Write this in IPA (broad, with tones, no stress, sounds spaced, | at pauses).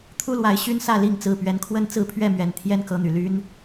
t̪ʰ u˦ l w a˨˦ ɪ̯ ɕ y˦ n s ä˥˨ l i˥˨ ŋ t͡s ɹ̩˥˨ p ɥ ɛ˨˦ n kʰ w ə˥˨ n t͡s ɹ̩˥˨ pʰ ɥ ɛ˥˨ m ɥ ɛ˨˩ n t̪ʰ j ɛ˦ n k ɤ˨˦ n̪ y˨˩ l y˦ n